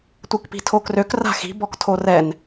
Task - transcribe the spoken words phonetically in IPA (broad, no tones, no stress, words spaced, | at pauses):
tʷikpi̤tʰokrøk ra̤xi̤ bɔktʰorɛn